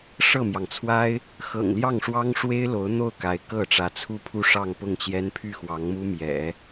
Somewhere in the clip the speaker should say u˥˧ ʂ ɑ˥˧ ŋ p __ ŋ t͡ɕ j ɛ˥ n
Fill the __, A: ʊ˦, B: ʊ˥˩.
B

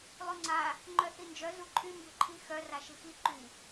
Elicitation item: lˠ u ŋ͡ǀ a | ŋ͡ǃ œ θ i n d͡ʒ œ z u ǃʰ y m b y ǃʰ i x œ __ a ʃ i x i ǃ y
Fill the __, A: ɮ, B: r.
B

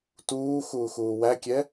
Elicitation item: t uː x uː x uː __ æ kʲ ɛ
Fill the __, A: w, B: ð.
A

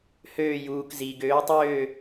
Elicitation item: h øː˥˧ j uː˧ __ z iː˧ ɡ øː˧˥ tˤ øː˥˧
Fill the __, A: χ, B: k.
B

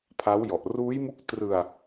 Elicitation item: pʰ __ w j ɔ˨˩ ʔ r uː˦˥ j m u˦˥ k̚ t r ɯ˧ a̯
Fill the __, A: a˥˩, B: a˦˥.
B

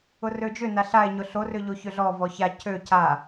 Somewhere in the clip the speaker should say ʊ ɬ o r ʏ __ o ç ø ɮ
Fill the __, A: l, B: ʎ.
B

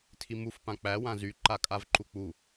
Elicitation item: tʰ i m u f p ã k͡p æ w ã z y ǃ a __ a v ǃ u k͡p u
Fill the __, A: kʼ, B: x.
A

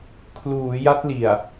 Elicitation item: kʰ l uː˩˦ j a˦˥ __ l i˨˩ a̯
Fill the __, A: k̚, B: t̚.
B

